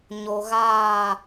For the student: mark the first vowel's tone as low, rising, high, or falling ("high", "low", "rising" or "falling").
low